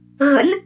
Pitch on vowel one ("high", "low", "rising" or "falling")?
rising